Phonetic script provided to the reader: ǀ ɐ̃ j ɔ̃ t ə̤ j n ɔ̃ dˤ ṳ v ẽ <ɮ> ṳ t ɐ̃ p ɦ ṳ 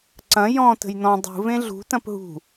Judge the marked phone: correct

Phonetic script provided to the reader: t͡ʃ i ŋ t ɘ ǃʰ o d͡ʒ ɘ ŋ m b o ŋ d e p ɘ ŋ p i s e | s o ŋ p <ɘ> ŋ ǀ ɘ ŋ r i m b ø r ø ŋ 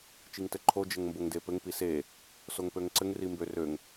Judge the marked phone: incorrect: ø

